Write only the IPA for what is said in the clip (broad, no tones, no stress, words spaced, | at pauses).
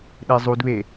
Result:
ɗezˤudβe